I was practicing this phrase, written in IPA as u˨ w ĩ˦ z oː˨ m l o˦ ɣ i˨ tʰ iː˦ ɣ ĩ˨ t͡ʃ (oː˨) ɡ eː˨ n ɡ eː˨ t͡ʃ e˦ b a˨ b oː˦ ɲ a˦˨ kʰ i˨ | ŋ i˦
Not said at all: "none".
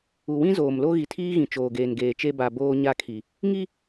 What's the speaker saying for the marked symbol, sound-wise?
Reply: oː˨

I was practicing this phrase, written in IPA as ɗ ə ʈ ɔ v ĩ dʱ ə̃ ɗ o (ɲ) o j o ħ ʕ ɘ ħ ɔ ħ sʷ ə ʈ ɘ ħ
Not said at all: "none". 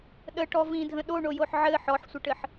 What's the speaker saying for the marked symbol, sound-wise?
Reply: ɳ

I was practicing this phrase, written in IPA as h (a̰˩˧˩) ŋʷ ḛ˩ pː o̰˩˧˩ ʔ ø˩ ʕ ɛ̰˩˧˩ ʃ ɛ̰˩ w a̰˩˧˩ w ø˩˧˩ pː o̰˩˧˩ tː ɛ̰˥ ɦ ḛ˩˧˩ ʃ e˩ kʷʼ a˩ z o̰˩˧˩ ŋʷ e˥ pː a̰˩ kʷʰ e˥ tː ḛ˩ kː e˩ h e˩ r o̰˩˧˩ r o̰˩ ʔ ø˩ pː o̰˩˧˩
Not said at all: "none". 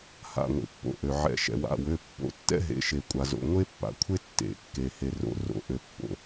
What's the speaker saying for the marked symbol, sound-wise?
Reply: a̰˩˧˩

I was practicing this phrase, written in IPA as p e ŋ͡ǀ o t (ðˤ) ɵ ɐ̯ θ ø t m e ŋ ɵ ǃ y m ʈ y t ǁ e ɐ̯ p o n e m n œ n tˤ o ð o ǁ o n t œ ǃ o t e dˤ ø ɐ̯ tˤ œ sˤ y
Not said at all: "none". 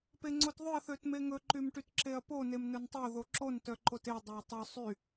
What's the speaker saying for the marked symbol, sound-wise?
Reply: ðˤ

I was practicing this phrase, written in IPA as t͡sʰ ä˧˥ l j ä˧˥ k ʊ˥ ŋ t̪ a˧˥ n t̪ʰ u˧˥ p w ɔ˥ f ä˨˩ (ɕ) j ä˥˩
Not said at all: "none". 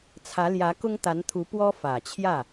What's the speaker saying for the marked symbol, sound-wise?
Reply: t͡ɕʰ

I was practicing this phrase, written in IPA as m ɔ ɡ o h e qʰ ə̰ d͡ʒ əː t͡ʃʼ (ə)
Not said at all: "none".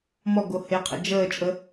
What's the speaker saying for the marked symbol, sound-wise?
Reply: ə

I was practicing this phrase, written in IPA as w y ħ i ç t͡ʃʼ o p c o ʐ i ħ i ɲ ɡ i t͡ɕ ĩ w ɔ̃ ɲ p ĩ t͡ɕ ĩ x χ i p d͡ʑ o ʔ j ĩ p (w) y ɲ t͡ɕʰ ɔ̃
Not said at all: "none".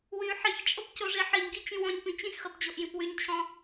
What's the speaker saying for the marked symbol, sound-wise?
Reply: w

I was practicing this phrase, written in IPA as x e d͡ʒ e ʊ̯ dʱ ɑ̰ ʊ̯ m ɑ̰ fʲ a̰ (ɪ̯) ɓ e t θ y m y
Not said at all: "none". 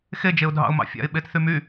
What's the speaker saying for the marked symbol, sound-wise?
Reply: ɪ̯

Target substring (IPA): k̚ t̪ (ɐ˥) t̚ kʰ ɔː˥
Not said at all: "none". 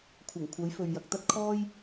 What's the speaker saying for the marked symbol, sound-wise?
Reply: ɐ˥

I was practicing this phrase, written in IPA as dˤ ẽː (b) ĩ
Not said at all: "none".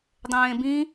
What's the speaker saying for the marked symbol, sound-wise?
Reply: b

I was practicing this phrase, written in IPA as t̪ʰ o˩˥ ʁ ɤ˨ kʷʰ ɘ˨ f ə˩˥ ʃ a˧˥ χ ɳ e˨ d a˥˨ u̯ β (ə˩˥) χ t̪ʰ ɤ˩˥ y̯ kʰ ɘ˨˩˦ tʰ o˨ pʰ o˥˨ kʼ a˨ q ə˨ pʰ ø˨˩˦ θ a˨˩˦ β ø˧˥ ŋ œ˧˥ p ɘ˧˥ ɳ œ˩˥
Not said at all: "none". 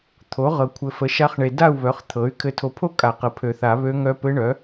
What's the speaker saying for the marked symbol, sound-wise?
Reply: œ˩˥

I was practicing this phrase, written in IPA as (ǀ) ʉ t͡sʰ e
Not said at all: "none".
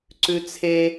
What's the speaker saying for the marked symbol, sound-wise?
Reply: ǀ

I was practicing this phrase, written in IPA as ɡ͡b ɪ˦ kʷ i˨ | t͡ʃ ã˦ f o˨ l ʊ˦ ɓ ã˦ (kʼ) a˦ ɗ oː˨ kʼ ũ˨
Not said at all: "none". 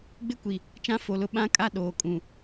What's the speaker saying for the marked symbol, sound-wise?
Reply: kʼ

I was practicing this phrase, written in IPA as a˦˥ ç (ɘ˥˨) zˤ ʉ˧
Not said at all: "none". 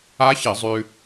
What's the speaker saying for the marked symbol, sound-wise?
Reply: ɘ˧˩˧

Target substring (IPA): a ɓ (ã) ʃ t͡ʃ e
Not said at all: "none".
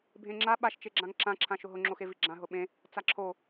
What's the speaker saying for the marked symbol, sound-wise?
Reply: a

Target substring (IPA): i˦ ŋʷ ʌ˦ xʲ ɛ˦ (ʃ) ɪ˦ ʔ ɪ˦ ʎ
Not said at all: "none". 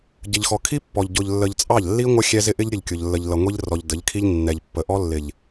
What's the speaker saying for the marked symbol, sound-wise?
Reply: z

